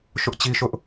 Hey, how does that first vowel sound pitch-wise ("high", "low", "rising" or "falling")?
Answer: high